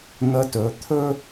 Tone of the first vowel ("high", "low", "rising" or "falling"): rising